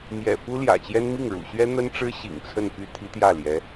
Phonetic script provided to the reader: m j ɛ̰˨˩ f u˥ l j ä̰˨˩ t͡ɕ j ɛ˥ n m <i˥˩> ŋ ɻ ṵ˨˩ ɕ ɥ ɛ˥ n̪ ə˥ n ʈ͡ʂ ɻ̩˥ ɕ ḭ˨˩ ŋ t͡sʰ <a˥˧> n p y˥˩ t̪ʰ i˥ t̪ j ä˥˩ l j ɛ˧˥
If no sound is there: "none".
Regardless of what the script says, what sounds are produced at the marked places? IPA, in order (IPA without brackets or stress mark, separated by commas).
i˥˩, ə˥˧